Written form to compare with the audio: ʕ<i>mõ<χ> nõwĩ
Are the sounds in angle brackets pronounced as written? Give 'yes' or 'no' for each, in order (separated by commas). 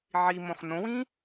yes, yes